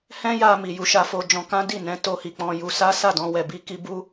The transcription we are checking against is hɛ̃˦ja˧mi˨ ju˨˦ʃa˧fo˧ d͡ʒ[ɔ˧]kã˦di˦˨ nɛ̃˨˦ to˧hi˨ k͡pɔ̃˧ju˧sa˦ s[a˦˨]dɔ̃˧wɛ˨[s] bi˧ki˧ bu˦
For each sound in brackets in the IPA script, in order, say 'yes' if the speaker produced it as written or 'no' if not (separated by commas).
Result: no, yes, no